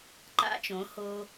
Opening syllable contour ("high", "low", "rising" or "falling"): rising